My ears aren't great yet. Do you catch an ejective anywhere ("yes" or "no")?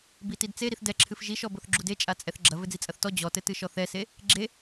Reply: yes